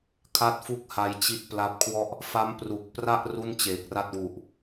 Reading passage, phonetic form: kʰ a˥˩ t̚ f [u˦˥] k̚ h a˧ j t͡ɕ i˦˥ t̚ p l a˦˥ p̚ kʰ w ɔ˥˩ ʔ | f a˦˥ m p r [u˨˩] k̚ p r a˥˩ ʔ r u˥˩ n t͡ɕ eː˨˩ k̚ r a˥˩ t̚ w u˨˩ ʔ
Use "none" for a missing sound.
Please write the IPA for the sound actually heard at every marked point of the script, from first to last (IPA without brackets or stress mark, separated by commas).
u˥˩, u˨˩